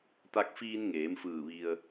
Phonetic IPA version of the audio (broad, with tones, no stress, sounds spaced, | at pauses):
t̪ a˧ k̚ f iː˧ n ŋ eː˩˧ m f ɯː˧˩ ʋ i˧ ə̯